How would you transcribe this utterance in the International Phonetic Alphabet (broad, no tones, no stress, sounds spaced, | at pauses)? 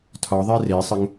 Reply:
tʰ ɒ ðˤ e r e sˤ ɘ ŋ